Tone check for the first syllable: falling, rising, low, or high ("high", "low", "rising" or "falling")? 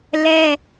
high